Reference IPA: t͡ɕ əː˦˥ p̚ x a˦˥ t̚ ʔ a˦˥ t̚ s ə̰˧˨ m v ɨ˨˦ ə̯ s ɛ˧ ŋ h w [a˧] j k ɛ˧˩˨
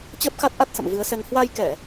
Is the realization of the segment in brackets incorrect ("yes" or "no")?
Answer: no